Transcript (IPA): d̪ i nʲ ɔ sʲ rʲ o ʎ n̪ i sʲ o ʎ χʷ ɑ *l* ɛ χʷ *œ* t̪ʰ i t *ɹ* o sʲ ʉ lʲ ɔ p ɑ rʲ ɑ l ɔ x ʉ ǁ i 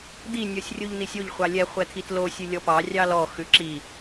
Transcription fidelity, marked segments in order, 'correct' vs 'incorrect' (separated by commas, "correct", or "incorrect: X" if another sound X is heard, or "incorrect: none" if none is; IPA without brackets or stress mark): incorrect: lʲ, incorrect: ɛ, incorrect: l